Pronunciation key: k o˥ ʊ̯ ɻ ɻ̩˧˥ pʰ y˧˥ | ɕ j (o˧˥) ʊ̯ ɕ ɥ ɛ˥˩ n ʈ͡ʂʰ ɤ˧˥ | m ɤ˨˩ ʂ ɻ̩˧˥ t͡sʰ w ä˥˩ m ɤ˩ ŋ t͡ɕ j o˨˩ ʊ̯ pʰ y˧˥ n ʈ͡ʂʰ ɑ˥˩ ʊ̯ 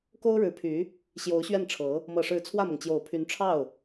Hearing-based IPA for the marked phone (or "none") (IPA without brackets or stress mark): o˧˥